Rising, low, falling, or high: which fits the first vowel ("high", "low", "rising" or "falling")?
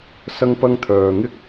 high